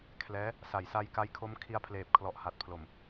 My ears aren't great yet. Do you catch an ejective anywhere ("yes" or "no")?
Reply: no